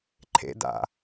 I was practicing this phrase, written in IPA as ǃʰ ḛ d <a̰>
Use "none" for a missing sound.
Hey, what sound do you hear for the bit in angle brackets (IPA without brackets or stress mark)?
a̰